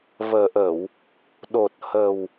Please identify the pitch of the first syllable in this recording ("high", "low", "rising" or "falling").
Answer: low